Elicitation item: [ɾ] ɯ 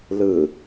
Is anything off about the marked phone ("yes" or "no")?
yes